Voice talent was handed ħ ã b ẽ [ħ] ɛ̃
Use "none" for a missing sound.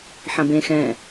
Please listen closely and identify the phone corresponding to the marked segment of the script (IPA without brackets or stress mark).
x